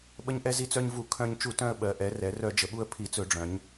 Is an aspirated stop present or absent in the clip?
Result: present